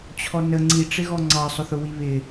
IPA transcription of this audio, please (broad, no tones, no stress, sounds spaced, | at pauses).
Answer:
t͡ɕʰ ɔ n ə ŋ͡ǀ i ʈ͡ʂ ɪ ɣ ɔ ŋ͡ǀ ɑ sˤ ʊ θ ʊ w i β ɪ